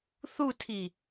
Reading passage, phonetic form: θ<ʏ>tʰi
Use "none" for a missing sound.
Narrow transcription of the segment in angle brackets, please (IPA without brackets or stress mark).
u